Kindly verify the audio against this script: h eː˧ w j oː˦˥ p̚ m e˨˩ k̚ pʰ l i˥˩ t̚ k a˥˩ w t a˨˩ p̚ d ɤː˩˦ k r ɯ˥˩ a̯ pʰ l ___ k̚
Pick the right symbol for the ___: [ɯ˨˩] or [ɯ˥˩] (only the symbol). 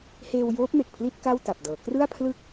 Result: ɯ˥˩